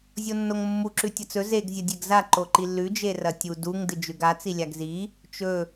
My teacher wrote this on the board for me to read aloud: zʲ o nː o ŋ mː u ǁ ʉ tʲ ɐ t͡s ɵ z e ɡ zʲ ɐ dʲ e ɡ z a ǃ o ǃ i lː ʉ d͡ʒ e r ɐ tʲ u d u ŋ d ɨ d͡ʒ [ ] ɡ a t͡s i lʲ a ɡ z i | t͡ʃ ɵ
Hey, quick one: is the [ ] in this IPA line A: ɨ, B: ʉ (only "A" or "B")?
B